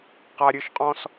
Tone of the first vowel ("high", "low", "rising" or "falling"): high